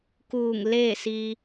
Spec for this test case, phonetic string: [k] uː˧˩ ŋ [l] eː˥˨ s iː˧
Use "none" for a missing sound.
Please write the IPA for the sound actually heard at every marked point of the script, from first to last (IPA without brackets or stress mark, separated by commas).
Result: k, l